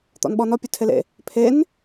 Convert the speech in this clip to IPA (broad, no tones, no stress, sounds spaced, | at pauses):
t̪ ɔ̰ n ɓ ɔ n ɔ pʲ ə˞ tʰ e l ḛ | pʰ e n